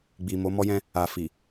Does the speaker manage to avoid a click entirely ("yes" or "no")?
yes